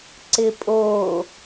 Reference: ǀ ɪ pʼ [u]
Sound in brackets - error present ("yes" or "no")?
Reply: yes